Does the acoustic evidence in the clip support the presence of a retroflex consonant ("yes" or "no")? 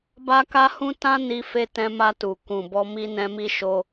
no